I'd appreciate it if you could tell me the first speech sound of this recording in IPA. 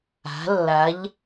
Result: a̤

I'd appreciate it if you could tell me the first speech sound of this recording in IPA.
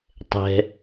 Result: tˤ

